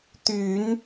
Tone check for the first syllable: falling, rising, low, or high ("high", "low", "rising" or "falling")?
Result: low